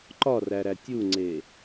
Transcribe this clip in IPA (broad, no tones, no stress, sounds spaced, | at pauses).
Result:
ǃ ɒ r æ ɾ æ tʲ u ŋ͡ǀ e